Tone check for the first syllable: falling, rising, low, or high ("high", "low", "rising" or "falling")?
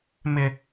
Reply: low